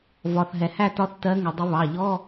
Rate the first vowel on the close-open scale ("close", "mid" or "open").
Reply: open